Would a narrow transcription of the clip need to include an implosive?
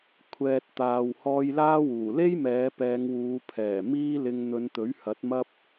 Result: no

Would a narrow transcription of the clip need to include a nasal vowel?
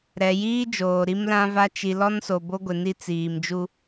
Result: yes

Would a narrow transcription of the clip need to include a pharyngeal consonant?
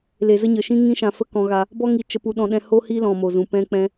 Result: no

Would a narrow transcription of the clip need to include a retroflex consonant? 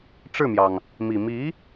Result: yes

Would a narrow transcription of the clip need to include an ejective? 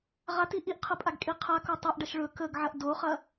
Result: yes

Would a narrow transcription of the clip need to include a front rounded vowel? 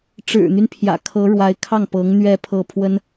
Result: yes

